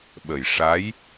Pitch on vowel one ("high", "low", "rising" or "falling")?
low